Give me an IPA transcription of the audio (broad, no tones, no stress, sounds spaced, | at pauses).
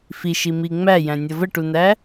f i ʃ i m i ŋ͡m æ j æ̃ nʲ ʌ v ə ʈ u n æ